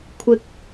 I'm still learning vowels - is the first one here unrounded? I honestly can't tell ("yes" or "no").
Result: yes